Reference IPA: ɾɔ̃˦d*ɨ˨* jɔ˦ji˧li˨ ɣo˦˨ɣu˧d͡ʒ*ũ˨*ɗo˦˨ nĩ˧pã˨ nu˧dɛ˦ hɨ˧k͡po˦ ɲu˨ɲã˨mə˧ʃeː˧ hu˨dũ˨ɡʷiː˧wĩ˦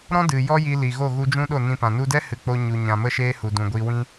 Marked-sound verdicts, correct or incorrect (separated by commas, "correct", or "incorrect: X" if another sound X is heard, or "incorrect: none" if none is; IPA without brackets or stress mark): correct, incorrect: ũ˦